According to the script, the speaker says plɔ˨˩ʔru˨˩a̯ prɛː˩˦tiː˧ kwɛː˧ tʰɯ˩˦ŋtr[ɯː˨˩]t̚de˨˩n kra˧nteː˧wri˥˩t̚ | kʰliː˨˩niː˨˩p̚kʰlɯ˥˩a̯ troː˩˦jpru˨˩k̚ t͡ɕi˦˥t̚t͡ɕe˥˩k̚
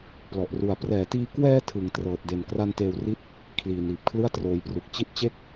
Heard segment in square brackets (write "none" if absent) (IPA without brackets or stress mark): ɤː˨˩